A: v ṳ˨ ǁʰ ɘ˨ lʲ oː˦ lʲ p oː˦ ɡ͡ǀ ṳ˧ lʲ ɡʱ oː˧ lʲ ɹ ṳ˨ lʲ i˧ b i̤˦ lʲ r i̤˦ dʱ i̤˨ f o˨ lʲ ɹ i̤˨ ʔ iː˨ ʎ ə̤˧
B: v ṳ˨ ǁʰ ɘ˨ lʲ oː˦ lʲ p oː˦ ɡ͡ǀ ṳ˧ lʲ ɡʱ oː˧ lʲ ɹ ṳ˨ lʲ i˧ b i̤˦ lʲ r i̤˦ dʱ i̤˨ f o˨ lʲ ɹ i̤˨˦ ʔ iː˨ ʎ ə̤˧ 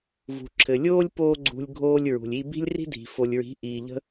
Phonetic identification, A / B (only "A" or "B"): B